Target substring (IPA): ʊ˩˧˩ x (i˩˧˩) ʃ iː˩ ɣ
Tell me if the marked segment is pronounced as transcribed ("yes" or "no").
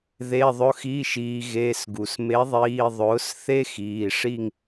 yes